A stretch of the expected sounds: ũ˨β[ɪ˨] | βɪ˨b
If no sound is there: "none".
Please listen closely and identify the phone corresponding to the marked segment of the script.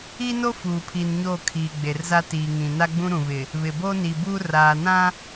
ɪ˨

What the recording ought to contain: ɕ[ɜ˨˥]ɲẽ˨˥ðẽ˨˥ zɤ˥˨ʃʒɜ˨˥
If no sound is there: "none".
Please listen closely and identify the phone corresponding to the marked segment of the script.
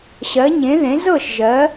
ɜ˨˥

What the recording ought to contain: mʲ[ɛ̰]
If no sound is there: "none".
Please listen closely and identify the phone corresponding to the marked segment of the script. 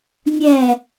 ɛ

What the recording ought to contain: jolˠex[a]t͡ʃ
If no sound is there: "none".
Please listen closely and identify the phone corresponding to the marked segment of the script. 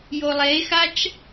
a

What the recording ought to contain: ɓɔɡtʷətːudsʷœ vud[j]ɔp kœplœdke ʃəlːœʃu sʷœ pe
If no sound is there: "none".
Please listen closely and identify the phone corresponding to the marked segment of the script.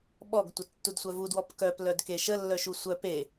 w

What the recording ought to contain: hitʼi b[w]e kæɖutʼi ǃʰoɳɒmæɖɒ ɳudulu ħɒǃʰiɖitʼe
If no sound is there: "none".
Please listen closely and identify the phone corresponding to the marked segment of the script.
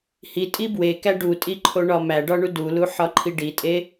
w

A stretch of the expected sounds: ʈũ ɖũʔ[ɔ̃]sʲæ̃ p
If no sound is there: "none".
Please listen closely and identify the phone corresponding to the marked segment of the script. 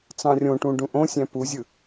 õ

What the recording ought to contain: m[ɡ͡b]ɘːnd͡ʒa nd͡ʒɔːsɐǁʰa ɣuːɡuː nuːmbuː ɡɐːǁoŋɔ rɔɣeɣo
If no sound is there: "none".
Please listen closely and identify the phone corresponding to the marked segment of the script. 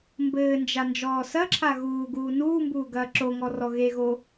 b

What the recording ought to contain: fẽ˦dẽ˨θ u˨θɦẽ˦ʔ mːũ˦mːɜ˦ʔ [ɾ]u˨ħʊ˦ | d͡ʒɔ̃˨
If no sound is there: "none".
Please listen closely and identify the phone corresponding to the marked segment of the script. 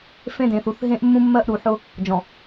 ɾ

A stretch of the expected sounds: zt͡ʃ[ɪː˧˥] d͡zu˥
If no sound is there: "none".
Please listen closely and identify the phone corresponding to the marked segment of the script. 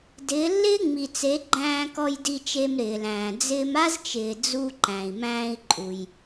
ɪː˩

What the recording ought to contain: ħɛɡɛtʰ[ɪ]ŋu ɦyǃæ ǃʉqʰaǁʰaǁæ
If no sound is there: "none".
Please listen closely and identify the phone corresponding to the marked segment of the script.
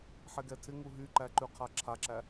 ɪ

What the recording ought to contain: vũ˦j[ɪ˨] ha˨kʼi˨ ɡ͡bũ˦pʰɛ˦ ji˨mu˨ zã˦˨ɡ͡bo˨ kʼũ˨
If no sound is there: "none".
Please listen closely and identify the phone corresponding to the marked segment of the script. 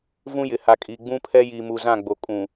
ɪ˨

